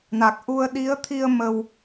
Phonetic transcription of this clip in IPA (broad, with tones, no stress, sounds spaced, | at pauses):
n a˨˩ k̚ ʔ u˧ ə̯ ɗ i˨˦ ə̯ t̪ʰ i˧ ə̯ m ə˧ w